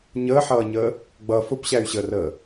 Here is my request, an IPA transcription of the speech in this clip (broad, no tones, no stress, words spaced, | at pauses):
ɲəːħʌːɲəː | ɡ͡bʌ fʊpɕæy̯ɕəːrəː